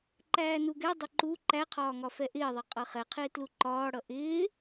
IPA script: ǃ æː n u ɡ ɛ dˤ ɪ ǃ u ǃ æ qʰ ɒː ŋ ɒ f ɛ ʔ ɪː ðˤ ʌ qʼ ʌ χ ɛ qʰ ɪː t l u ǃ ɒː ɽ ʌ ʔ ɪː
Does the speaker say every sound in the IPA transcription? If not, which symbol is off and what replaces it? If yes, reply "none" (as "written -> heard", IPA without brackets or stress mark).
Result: none